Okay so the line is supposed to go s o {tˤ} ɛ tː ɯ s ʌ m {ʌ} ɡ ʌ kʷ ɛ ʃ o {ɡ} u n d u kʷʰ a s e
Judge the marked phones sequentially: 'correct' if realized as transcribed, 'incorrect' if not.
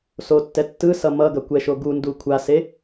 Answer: incorrect, correct, correct

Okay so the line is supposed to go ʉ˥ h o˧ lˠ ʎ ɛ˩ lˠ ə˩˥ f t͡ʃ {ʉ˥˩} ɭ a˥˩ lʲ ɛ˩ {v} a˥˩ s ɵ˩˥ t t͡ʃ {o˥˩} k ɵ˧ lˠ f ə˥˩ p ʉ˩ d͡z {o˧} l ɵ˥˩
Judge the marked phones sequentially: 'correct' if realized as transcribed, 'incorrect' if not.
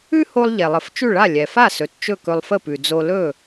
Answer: correct, incorrect, incorrect, correct

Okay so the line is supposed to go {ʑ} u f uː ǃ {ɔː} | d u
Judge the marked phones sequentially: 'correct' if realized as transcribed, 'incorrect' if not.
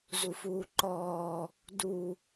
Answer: incorrect, correct

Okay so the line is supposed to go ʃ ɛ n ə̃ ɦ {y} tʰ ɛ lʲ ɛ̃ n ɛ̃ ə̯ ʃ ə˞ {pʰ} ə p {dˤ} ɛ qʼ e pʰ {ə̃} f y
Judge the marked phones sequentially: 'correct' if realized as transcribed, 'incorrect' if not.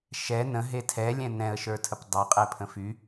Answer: incorrect, incorrect, correct, correct

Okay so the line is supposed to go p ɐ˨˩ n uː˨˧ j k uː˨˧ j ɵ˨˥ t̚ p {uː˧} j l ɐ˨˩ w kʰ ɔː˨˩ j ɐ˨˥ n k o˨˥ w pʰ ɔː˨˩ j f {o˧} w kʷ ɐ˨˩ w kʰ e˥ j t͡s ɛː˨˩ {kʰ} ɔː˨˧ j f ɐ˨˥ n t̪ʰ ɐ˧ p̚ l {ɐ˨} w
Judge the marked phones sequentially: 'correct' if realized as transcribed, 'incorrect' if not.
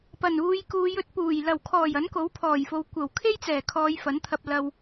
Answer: incorrect, incorrect, correct, correct

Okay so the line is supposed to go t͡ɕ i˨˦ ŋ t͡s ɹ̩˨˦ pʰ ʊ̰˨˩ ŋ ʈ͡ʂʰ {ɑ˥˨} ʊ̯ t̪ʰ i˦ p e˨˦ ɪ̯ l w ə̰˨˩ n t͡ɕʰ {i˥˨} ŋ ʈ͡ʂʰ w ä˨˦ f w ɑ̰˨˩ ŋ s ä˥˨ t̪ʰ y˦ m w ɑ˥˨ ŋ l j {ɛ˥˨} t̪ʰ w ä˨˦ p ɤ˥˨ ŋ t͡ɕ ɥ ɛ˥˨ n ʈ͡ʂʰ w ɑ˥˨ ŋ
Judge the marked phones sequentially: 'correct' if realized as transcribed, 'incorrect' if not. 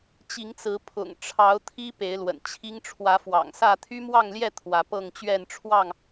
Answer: incorrect, incorrect, correct

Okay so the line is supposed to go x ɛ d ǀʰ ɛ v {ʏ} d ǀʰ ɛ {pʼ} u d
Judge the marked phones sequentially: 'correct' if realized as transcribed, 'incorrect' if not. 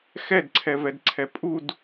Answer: incorrect, correct

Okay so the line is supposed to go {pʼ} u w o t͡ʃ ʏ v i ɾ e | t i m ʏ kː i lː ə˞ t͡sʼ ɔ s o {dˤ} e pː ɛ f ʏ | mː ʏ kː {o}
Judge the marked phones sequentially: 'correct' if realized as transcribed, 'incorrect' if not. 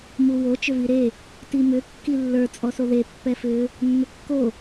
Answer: incorrect, incorrect, correct

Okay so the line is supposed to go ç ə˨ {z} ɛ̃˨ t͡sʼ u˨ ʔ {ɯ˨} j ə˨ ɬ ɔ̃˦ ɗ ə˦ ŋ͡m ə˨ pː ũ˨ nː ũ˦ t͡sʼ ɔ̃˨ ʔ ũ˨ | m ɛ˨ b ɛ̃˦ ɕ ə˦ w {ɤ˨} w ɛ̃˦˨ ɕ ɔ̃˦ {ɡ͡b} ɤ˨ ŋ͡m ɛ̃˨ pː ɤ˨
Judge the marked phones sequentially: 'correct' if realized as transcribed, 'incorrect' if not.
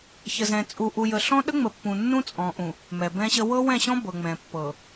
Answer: correct, incorrect, incorrect, incorrect

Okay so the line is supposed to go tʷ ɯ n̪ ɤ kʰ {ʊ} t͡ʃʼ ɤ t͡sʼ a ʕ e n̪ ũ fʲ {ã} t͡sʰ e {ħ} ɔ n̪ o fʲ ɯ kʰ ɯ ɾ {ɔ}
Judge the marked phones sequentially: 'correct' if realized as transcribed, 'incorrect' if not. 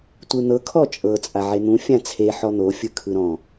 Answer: incorrect, correct, correct, incorrect

